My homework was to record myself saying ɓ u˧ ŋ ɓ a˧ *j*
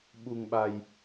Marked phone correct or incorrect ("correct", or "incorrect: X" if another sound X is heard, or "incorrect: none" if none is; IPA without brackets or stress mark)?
correct